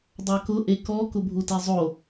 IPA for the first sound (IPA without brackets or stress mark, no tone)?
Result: dˤ